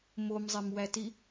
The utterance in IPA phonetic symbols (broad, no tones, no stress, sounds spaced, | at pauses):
m o m zˤ e m w æ t i